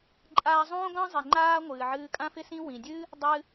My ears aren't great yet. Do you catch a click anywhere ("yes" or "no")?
yes